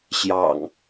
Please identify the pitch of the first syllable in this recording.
low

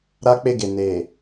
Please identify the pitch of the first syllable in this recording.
high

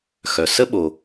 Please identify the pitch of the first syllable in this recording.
low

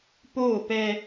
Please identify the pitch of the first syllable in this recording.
falling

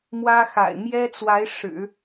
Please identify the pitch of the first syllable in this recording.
high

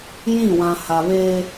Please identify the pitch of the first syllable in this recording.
falling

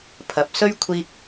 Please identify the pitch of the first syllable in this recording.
rising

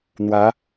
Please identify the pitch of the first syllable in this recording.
rising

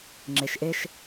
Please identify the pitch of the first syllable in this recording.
low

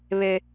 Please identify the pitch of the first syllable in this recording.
high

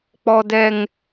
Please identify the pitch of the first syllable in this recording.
high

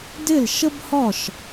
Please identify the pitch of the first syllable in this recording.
falling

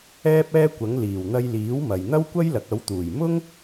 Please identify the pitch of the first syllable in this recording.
high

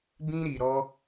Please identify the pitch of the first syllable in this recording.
high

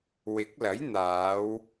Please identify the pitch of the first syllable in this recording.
rising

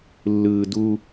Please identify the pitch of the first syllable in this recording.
low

